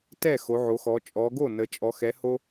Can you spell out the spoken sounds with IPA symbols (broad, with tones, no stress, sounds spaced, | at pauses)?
t ɛ˥˩ x o˩˧ ʕ o˩˧ x ɔ˩˧ t͡ʃʼ ɔ˩˧ ɡ o˥˩ n ə˩˧ t͡ʃʼ ɔ˩˧ x ɛ˩˧ h o˧